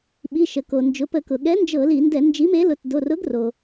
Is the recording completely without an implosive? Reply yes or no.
no